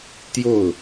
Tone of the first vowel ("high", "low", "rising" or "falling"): falling